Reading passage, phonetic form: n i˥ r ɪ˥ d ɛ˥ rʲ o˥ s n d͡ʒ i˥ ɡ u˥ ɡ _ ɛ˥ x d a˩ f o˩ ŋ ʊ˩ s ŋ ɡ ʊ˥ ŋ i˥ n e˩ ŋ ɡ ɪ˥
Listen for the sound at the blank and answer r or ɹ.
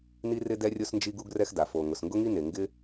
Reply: r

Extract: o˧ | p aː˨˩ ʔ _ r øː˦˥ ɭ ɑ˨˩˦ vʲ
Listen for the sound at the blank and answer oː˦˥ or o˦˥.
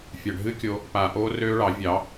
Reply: oː˦˥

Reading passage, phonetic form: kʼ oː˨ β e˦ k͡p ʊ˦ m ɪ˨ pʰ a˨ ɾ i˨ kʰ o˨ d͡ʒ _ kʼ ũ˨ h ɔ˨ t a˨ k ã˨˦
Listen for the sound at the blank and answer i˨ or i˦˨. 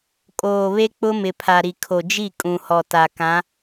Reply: i˦˨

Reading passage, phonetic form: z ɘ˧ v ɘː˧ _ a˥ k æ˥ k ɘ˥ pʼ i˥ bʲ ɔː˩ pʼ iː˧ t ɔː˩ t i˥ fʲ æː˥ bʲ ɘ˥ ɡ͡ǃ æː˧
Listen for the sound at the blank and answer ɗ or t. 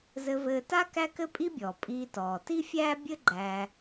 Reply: t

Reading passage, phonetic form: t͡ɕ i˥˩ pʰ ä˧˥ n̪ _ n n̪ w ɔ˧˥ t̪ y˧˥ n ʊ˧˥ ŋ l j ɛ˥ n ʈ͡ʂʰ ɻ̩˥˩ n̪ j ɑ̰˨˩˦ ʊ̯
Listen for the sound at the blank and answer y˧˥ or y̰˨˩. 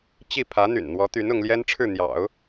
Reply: y̰˨˩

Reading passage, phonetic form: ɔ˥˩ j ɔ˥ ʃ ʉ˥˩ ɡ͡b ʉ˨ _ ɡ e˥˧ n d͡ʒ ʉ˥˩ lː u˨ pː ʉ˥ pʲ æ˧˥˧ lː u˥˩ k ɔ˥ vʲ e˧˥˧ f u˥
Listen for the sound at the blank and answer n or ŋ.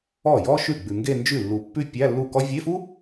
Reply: ŋ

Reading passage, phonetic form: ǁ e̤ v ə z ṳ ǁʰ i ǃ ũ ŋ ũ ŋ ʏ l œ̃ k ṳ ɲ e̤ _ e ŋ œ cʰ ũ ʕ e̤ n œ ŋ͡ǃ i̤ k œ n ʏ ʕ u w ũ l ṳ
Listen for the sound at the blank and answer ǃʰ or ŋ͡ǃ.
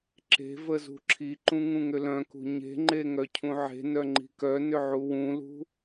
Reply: ŋ͡ǃ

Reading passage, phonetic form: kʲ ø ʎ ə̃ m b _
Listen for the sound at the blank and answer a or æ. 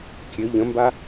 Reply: a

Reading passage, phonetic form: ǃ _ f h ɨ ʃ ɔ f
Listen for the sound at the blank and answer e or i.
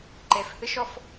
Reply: e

